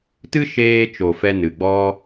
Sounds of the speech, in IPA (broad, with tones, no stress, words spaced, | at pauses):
tɨ˦ʃeː˧t͡ʃo˨ fɛ˧nɨ˨ɡ͡bɔ˦